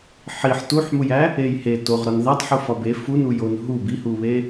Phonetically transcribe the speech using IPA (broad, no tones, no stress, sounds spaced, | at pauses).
ħ i ħ t u ħ m u j æ | e j h e t o ʁ ɾ ɒ n ð æ tˤ ħ u f ɒ b e f u n u j o n ɦ u b i h u β e